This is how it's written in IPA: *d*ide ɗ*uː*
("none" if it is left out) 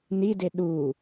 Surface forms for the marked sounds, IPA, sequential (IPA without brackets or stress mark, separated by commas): n, uː